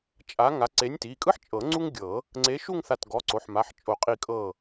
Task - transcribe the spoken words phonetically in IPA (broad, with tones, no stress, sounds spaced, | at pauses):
t͡ʃʼ a˨˥ ŋ a˨˥ ǀ e˨˥ nʲ t i˩˧˩ kʼ ɯ˥ ħ t͡ʃʼ ɤ˨˩˦ ŋ͡ǀ u˥ ŋ ɡʲ ɤ˨˩˦ | ŋ͡ǀ e˨˥ ʃ u˥˧ ŋ θ a˧˩ t ɡ ɔ˩˧˩ ǀ o˩˧˩ ħ m a˩˧˩ ħ t͡ʃʼ o˨˩˦ qʼ i˧˩ kʼ ɤ˧˩